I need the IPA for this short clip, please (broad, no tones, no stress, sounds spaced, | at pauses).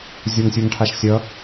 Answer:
zʲ o ŋ sʲ u ŋ ʈʰ a ʃ sʲ ʌ